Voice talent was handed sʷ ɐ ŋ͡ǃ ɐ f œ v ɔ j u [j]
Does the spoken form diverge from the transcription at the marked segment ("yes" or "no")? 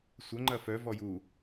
yes